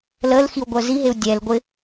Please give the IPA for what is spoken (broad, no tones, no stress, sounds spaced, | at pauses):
l ə l x i w ɡʷ œ z i ɦ e u̯ dʲ ɛ l ɡʷ ɪ